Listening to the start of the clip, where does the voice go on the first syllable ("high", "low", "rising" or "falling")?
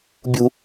high